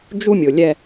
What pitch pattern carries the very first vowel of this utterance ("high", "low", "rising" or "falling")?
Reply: high